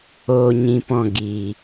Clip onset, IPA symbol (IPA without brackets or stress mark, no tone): oː